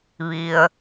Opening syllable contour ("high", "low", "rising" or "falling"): low